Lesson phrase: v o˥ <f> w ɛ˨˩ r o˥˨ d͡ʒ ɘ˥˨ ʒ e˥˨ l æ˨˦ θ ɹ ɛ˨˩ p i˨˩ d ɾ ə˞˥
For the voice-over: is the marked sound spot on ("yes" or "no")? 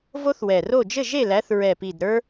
no